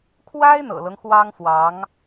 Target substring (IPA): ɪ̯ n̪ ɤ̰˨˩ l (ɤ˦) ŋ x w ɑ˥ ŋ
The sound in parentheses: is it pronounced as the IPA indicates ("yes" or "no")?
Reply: yes